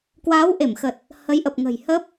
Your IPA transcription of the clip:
kwaː˨˦wʔe˧˩mxə˨˩t̚ | hə˨˦jʔə˨˩p̚ ŋə̤˨˩j hə˦˥p̚

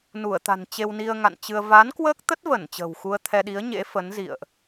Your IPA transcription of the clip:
nu˧˩ə̯t̪a̤˨˩n t͡ɕe˧wni˧ə̯ŋa̰˧˨nt͡ɕɨ˧ə̯ va˨˦nkwəː˦˥k̚t̪ə˦˥t̚və˧˩n t͡ɕə̤˨˩wxu˧ə̯ t̪ʰɛ˧ɗi˨˦ə̯ɲḛ˧˥ fə˨˦nzḭ˧˨ə̯ʔ

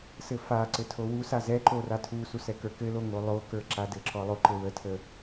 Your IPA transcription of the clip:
sɘfaǀɘ tʰowusa zɛǃo ratʰusu sɛkə˞kɘlo ŋolˠokə˞ ǁadɘǁɔ lˠoǃɘwətʰə

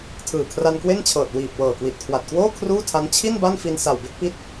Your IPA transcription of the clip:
tʰɯː˨˩kʰra˧nkwe˥˩nt͡ɕʰɤː˨˩t̚ wiː˨˩p̚ wɤː˨˩kwi˨˩t̚kʰwa˨˩t̚kwoː˥˩ kʰruː˥˩tʰa˦˥n t͡ɕʰi˥˩n ba˥˩nfi˧n sa˨˩wbe˥˩k̚pi˦˥t̚

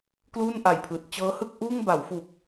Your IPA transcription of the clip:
kluː˥˩nʔa˨˩jpʰɯː˨˩t̚ t͡ɕɤː˦˥hɯ˥˩k̚ʔuː˥˩ŋ ba˩˦wfu˨˩k̚

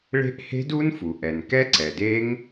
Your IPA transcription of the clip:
ɭe̤˦˥ʔhe̤˦˥du˦˥nfu˩ ʔɛ˩nkɛ˦˥ǀɛ˩ de˦˥ŋ

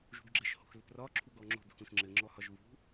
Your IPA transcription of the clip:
ʒṳdɡ͡ǁɘʃ ho̤xlʏtrɒ ǁʰuɡɔŋ͡ǁo̤d xũʃŋ͡ǁɘ ŋ͡ǁɔhɒʒvṳ

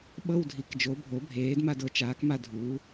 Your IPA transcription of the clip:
ɓɤ˦˨wdʱi˩˧k d͡ʒo˩˥bʱo˩˥bʱeː˩˥d ma˦˨dɤ˩˥t͡ʃaː˩˥kma˦˨ dʱuː˩˥

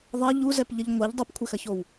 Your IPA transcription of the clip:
ðˤɐ ʎuzɛpʎəʎ ŋʷɛʎ dˤupkʷʰɛxɐçow

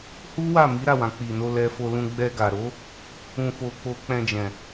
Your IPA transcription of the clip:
hu˦wa˦˨mi˨˦ ɾa˦˨wã˨ k͡pi˨ no˧lɛ˧fo˧lũ˧ ɡ͡bɛ˧ ɡa˨ɾo˨˦ | ũ˧fo˧ k͡po˧k͡pɛ̃˧d͡ʒɛ̃˨

